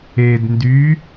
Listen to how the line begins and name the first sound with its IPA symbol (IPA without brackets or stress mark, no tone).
e